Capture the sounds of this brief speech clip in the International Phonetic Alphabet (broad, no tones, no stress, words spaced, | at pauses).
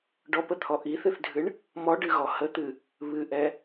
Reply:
ɖɔpət̪ʰɔ ʔiθɨθdʱɨɳ | mɔɖɨɣɔ hət̪ɨ | βɨʔɛ